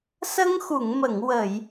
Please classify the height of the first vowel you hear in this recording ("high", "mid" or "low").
mid